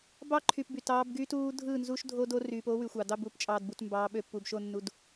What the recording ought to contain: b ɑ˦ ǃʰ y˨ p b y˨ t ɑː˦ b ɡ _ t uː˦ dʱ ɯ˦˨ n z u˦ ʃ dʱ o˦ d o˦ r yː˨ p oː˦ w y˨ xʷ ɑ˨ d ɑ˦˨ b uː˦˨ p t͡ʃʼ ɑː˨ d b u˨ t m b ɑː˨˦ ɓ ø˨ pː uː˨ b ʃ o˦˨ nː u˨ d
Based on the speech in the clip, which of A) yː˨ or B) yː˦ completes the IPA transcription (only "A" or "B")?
B